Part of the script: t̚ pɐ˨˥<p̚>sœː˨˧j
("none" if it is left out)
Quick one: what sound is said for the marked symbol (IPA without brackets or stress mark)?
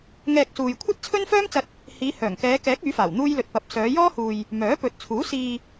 p̚